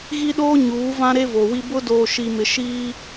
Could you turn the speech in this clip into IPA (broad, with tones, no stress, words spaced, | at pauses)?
ɣi˦ɗoː˦ ɲuː˨˦vã˦ɾe˦ vo˨wi˦ bʊ˦ doː˨ ʃi˨mɪ˨ ʃiː˦